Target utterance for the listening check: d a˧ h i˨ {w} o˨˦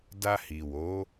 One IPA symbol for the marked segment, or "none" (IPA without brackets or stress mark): w